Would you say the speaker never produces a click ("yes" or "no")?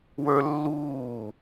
yes